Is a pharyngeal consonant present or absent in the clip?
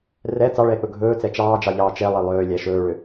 absent